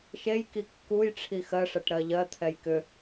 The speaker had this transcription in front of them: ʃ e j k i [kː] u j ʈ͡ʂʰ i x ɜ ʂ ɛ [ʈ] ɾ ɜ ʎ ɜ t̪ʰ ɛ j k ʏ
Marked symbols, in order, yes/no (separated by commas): yes, yes